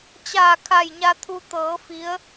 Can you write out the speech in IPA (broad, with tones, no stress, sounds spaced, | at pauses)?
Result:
t͡ɕ aː˧˩ kʰ a˧˩ j ɲ a˧ t̪ʰ u˧ t̪ ɤː˩˧ f i˧˥ ə̯